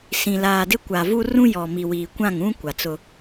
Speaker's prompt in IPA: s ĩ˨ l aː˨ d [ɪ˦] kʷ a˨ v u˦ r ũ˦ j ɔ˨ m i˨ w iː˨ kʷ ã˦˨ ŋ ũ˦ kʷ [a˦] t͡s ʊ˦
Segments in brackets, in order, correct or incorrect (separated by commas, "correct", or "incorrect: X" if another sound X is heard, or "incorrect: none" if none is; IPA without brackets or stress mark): correct, incorrect: a˨